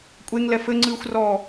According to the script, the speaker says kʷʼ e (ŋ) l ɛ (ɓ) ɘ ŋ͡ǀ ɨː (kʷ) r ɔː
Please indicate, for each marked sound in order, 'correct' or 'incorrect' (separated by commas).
correct, incorrect, incorrect